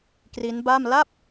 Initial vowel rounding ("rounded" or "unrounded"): unrounded